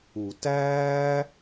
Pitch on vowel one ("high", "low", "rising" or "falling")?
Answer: low